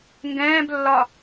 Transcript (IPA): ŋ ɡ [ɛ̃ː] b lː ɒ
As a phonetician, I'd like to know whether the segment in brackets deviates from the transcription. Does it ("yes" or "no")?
no